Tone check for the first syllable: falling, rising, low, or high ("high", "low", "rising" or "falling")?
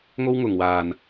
high